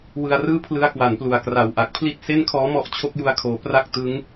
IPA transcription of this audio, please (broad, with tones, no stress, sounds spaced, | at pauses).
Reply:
w ɯ˧ a̯ r ɯː˥˩ pʰ l ɯ˦˥ a̯ k w a˩˦ n p l u˩˦ a̯ k r a˨˩ w ʔ a˨˩ k̚ pʰ l i˥˩ t̚ s e˥˩ n kʰ ɔː˦˥ m ɔ˦˥ ʔ t͡ɕʰ o˦˥ k̚ j u˧ a̯ kʰ oː˩˦ p r a˥˩ k̚ t ɯ˦˥ ŋ